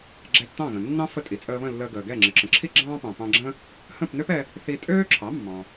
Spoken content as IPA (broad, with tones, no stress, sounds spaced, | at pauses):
ɡ͡ǁ ɛ˧ tː ɑ̃˥˩ ɣ ə̃˩ nː ɑ̃˥ f ə˥˩ tʼ i˩ t͡sʼ əː˧ β ə̃˥˩ lː əː˧ ɡ əː˩ ɡ ɛ˥˩ ŋ͡ǁ ə˩ ǁ ə̃˩ ǁʰ i˥ ɡ͡ǁ ɑ̃ː˥ p ɑ̃˩ p ɑ̃˧ ɡ͡ǁ ə̃˥ | h ə̃˥˩ p n ø˥ p ɛ˧ | θ i˧ tʼ øː˥ ǁʰ ɑ˩˥ mː ɑ̃˩